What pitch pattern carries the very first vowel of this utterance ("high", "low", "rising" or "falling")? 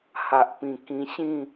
low